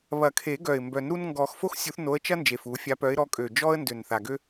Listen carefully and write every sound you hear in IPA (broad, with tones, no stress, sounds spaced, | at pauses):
β ɐ˨˩˦ kʰ e˨˩˦ ɡ œ˨˩ ɪ̯ m b œ˨˩˦ n ɾ u˦ n ŋ ɡ ɔ˨˩˦ x f o˦ x sʲ u˨˦ θ n o˨˦ ə̯ t͡ʃ ɐ˦ n d͡ʒ e˨˩ f u˨˩˦ fʲ a˨˦ p œ˨˦ ɪ̯ ɾ ɔ˨˦ kʼ ø˨˩ d͡ʒ ɔ˦ ə̯ n d ø˨˩ n θ a˨˩ ɡ ø˦